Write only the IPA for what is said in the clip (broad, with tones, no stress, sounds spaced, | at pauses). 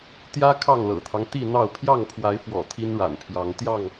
t̪ j ä˦ kʰ ɑ˥˨ ŋ l ɤ̰˨˩ t̪ʰ ɑ˦ ŋ t̪ i˥˨ n̪ ɑ˥˨ ʊ̯ pʰ j ɑ˥˨ ŋ pʰ w a˨˦ ɪ̯ f w ɔ̰˨˩ t̪ʰ i˦ n ɻ a̰˨˩ n pʰ j ɑ˨˦ ŋ t̪ j ɑ˥˨ ŋ